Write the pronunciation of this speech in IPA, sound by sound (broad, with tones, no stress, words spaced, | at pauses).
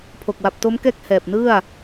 pʰo˨˩k̚wa˨˩p̚to˦˥mkɛː˥˩k̚ hɛː˨˩p̚ nɯ˥˩a̯